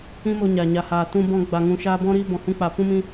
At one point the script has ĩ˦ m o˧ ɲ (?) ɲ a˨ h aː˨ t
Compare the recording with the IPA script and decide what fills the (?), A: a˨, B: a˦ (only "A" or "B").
A